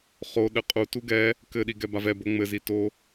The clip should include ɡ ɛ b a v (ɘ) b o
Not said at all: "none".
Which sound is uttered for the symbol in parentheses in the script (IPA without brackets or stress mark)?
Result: ɛ